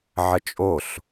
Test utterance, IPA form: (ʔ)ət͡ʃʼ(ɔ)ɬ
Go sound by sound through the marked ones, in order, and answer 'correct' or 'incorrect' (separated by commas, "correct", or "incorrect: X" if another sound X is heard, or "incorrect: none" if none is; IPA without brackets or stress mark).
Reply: incorrect: ʕ, incorrect: o